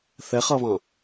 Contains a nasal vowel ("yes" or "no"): yes